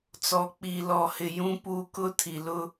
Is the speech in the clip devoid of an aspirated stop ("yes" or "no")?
no